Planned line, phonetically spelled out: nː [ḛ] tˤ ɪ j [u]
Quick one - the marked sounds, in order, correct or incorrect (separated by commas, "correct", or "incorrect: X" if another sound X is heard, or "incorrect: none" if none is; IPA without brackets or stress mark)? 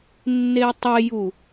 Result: incorrect: e, correct